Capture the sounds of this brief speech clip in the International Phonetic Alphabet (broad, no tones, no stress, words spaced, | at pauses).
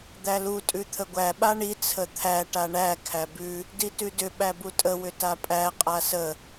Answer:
d̪ælu tʼʉt̪ʰəɡʷæ ɓaɳi t͡sʰət̪ʰæ ʈaɳæ kʰæbʉ | ditʉdʏ ɓæbutʼə wʏtapʼæ qʼasə